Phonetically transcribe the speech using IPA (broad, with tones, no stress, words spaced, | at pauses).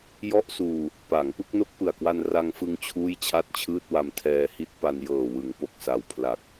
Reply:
jɔ˥˩ʔsuː˧ | paː˩˦ŋpɯ˥˩k̚no˥˩k̚ pɯ˨˩a̯kwa˧n ra˧ŋfɯ˧ŋ t͡ɕʰuː˥˩jt͡ɕʰa˥˩t̚t͡ɕʰɯː˥˩t̚wa˧m tʰɛː˧hi˦˥t̚ pa˧njɤː˨˩wɯ˩˦ŋpo˨˩k̚ sa˨˩wpʰla˨˩k̚